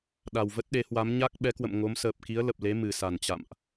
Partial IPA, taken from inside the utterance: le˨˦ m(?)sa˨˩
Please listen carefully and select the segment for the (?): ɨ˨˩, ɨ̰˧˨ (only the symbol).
ɨ˨˩